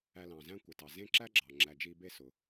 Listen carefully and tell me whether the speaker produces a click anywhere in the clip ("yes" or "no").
yes